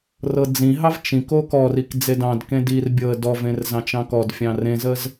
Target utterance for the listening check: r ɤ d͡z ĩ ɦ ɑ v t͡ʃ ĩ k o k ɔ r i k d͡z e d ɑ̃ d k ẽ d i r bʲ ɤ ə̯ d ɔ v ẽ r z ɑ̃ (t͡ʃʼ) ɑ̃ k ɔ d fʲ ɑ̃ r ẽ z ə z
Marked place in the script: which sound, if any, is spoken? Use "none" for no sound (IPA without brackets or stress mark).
t͡ʃ